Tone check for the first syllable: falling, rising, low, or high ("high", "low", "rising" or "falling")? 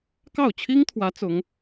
falling